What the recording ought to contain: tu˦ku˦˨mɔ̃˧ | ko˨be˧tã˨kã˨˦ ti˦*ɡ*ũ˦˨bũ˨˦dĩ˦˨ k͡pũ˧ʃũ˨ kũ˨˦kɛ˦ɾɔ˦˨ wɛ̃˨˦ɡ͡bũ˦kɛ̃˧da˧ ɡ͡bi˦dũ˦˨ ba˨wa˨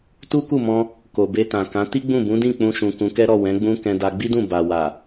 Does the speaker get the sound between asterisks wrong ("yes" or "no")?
yes